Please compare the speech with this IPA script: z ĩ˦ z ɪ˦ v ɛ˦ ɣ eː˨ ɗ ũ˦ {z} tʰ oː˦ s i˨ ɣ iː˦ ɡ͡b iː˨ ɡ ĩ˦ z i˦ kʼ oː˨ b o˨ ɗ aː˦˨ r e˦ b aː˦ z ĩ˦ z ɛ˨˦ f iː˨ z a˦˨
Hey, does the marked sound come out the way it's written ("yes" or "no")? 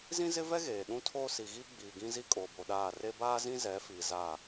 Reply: no